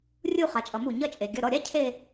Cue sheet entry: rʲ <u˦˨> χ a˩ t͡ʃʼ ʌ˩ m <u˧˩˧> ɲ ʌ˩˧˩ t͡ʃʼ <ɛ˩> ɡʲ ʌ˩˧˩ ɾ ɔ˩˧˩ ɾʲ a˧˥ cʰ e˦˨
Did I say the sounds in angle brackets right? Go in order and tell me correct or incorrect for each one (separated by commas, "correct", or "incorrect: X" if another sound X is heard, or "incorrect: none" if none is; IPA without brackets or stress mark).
correct, correct, incorrect: e˩